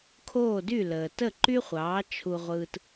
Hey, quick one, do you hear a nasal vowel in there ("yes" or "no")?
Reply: no